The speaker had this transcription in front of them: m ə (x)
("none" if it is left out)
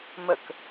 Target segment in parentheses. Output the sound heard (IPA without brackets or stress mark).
k